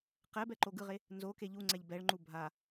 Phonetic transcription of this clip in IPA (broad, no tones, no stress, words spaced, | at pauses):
qɛbɛ ǃoɡɯʁe | nzoke ʎuŋ͡ǀɛʎ bɛɭŋ͡ǃu bʱa